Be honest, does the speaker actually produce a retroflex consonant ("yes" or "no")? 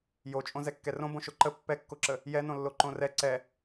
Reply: no